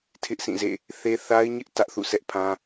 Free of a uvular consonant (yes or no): yes